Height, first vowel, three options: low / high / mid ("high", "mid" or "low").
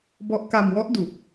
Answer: mid